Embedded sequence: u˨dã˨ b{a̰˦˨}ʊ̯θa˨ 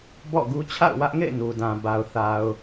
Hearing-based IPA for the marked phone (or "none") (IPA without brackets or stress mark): a˨